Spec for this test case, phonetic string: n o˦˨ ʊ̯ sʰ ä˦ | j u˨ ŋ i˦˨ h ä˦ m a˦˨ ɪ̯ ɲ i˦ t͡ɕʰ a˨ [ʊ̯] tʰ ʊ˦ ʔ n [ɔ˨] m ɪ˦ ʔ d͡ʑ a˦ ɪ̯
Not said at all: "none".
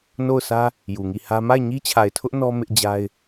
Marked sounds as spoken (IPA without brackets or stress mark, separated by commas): ɪ̯, ɔ˦